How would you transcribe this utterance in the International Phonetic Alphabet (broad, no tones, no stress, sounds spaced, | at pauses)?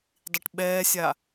dˤ i ʈ ɓ ɛː sʲ a